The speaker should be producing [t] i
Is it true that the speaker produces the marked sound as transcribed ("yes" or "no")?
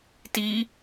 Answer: yes